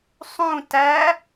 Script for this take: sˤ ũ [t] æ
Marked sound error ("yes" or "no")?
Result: no